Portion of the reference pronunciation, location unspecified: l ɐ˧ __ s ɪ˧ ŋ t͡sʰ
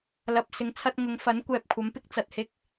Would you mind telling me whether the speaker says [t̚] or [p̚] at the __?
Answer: p̚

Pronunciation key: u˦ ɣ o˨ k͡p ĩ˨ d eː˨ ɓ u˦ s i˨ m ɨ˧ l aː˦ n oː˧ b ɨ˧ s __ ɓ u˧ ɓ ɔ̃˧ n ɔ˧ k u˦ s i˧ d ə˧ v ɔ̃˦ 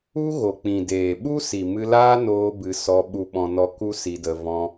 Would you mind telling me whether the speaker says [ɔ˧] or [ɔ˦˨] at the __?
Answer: ɔ˧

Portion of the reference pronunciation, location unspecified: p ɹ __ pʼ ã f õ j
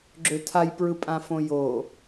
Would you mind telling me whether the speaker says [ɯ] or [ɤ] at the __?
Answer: ɯ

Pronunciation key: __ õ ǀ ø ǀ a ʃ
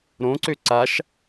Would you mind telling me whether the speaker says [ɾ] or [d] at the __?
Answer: ɾ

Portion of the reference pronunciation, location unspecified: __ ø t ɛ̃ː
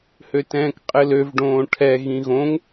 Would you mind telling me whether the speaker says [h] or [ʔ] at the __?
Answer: h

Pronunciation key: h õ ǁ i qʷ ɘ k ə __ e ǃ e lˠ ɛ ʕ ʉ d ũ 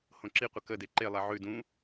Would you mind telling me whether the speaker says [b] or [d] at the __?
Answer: d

